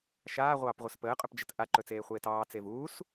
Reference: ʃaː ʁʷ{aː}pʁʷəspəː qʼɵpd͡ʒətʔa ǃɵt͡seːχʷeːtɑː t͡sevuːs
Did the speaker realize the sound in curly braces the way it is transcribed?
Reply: no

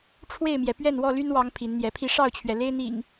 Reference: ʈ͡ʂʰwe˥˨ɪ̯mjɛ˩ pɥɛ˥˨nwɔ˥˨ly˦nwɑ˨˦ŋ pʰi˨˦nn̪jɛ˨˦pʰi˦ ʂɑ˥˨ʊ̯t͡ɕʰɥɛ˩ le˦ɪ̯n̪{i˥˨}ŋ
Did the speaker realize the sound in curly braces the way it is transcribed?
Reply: no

